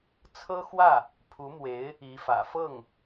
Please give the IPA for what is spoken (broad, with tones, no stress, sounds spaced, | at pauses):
t͡sʰ ɤ˥ x w ä˥˩ | pʰ u˧˥ m w e˧˥ ɪ̯ | i˧˥ f ä̰˨˩ f ɤ˥˩ ŋ